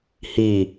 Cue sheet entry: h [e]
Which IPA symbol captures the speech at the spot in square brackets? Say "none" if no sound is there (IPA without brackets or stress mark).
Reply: i